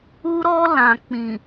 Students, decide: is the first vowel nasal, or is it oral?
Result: oral